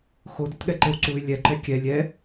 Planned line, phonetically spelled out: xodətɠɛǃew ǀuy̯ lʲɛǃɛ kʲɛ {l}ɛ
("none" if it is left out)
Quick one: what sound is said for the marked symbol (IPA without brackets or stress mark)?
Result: lʲ